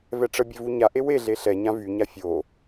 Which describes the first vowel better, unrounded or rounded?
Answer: unrounded